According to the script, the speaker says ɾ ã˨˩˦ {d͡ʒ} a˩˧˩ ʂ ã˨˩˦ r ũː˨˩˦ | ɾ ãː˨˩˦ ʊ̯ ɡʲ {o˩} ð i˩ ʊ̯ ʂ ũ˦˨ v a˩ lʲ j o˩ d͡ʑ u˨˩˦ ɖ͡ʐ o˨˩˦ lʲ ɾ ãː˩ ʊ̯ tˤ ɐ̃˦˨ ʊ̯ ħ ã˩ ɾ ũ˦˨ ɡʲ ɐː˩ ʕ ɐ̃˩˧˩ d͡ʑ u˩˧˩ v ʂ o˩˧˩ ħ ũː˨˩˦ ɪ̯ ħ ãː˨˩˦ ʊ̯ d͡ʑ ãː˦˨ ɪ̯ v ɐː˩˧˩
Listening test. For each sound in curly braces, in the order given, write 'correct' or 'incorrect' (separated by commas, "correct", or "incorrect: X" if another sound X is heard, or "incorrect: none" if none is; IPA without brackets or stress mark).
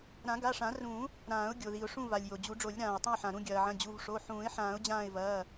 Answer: incorrect: ɡ, correct